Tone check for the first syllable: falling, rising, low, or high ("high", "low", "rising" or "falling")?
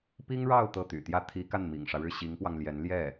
high